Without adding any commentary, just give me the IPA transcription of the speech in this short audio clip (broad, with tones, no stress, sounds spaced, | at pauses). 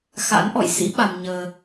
x a̰˧˥ n ʔ ɔ̰˧˨ j s ḭ˧˥ ɓ a˧ m ɲ əː˧